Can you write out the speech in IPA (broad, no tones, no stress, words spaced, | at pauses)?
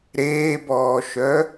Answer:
ɾeːbɔːʃœ